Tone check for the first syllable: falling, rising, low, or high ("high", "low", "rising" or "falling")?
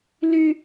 high